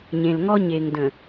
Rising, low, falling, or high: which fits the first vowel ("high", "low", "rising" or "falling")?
low